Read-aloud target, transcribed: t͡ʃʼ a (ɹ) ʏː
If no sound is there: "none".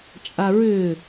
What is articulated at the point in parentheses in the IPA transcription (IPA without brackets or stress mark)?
ɹ